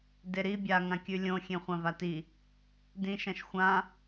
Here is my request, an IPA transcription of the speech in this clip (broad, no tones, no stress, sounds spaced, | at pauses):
d e ɾ i bʲ a ŋ ã kʲ ʉ lʲ õ xʲ ẽ χʷ ã v a t i | d ĩ ʃ ɐ̃ ʃ xʷ ã